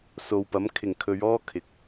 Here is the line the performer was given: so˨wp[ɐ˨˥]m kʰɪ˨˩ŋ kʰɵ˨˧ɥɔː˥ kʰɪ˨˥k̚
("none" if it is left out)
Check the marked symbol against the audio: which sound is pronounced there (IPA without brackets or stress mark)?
ɐ˨˥